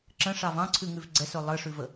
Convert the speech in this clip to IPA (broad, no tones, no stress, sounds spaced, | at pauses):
ǁ ə̃ ʂ ɑ v ɑ̃ ǀʰ ʉ ŋ ʉ v ɡ͡ǀ ɛ s ɵ lˠ ɘ ʂ ʉ v ə